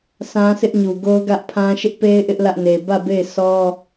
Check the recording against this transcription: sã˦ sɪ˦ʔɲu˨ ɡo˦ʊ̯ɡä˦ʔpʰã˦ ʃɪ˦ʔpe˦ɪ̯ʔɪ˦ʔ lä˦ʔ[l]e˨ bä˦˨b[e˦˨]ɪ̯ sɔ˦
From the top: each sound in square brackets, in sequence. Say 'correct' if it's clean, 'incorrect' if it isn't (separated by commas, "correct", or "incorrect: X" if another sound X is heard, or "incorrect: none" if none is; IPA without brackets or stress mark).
incorrect: n, correct